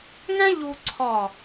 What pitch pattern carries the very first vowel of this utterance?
high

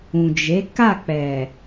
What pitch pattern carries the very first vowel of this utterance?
low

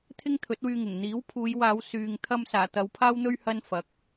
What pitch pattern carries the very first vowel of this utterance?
high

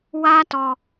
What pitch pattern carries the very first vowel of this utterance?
high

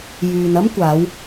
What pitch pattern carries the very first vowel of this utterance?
low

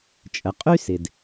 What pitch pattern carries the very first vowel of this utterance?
low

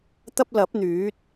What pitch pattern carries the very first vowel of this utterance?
high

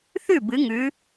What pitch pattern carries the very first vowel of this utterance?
falling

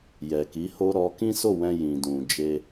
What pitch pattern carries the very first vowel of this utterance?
low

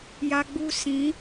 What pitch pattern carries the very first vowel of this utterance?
high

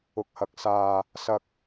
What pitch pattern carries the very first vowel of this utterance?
low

